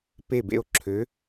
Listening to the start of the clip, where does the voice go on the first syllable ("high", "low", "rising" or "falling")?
falling